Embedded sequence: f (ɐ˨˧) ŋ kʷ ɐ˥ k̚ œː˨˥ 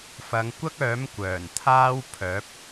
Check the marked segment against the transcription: correct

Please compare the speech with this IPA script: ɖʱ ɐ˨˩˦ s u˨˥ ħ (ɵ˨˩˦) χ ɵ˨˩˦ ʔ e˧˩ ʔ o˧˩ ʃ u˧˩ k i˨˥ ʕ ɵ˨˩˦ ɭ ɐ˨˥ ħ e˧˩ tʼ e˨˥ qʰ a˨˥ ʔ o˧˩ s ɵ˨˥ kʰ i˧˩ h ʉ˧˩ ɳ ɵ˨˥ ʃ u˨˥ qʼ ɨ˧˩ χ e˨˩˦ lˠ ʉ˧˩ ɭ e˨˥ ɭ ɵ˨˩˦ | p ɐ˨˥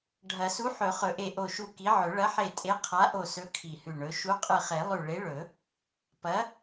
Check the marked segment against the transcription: correct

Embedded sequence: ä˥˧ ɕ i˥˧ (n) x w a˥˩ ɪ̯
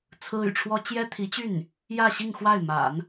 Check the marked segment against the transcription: incorrect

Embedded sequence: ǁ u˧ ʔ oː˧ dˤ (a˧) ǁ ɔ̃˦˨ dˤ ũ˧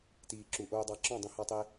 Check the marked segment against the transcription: incorrect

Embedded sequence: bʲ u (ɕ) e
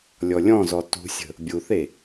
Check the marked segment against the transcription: incorrect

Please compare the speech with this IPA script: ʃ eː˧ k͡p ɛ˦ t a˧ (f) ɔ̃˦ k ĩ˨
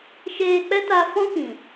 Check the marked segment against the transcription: correct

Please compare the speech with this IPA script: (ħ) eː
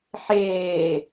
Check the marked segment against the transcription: correct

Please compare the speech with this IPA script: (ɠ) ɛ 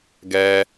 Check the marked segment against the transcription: incorrect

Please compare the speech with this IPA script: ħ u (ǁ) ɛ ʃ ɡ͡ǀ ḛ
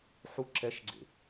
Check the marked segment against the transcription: correct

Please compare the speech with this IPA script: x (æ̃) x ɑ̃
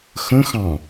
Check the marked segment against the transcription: incorrect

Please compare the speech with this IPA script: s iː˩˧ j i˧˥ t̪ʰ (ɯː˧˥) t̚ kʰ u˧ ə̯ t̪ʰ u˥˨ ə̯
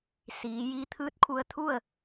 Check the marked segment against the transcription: correct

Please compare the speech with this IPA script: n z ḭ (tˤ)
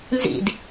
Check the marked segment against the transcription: incorrect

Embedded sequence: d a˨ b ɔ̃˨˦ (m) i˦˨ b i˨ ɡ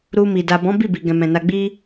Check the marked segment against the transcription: incorrect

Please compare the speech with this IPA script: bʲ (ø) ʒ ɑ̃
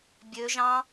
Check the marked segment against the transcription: correct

